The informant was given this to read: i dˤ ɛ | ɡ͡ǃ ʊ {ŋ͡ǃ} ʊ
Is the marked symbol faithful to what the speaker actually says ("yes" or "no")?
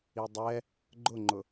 yes